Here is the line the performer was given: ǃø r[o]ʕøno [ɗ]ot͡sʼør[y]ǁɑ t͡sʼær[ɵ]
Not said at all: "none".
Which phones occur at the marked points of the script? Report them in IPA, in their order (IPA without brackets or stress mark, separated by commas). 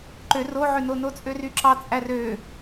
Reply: o, n, y, ø